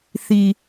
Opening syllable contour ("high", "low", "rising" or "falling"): low